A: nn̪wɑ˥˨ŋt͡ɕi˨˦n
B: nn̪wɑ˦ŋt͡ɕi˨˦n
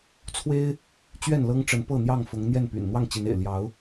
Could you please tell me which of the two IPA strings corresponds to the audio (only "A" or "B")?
A